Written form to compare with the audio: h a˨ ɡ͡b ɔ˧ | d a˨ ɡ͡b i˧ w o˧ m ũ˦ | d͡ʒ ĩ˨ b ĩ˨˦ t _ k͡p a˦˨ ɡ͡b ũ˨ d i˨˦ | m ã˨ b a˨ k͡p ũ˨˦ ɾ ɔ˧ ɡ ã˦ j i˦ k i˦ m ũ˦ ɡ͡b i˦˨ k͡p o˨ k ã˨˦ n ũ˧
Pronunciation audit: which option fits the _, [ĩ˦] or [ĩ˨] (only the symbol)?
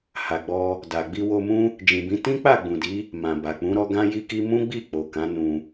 ĩ˦